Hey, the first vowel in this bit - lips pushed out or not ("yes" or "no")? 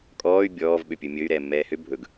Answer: yes